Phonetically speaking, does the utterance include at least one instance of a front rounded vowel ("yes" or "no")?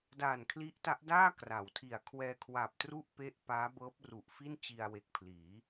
no